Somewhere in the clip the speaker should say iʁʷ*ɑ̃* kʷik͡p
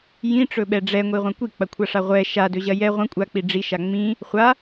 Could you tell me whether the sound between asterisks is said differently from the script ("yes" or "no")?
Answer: yes